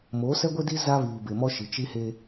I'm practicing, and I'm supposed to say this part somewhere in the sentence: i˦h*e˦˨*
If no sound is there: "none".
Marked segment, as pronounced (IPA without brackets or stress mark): e˦